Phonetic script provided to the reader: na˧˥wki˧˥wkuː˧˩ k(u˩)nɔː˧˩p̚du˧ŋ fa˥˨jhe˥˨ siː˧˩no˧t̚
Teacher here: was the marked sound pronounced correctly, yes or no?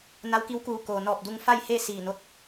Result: no